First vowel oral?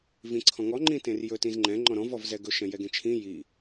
no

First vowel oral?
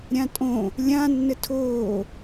no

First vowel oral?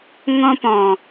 no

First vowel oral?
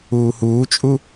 yes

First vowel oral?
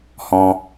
no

